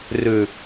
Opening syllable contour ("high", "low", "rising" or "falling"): low